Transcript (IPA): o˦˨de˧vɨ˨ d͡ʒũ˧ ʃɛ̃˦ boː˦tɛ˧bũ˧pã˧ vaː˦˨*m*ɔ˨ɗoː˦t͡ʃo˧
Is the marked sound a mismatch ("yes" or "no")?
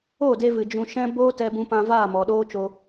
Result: no